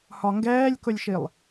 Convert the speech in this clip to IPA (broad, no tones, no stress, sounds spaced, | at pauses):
h ɒ ŋ ɡ ɛː lʲ k ʊ lʲ ʃ i lˠ